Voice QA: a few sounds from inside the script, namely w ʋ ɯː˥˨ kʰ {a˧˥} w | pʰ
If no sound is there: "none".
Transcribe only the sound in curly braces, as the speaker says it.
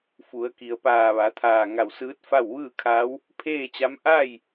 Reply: a˧˥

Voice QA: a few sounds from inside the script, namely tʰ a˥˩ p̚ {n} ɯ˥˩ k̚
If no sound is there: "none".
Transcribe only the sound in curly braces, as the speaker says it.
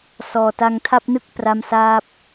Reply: n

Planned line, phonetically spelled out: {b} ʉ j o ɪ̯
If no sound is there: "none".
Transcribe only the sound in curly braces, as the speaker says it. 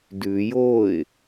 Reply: d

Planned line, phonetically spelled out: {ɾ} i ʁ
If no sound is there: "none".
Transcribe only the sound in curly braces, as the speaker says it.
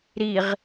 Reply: ɾ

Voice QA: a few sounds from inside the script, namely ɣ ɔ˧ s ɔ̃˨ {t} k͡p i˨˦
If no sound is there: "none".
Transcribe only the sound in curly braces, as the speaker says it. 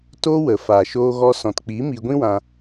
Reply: t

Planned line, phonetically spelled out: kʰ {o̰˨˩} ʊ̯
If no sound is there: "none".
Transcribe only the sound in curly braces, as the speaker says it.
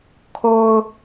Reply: o˦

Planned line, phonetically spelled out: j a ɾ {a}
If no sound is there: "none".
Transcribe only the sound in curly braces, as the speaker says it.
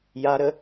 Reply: ə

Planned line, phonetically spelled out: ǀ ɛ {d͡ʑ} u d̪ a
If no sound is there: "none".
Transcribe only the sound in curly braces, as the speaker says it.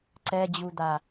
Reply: d͡ʑ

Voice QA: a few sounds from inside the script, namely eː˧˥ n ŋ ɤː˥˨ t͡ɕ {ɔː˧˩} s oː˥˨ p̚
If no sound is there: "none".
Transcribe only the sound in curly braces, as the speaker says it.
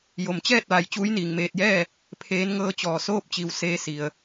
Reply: ɔː˧˩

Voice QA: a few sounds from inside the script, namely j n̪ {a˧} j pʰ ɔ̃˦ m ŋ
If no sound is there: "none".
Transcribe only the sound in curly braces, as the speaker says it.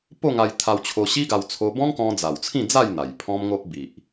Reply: a˨˩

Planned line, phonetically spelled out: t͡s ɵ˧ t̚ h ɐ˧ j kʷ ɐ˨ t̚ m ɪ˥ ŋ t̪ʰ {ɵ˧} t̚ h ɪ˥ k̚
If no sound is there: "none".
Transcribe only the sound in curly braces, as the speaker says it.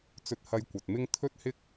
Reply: ɵ˥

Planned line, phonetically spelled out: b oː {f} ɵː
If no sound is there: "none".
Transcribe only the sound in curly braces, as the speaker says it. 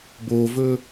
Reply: v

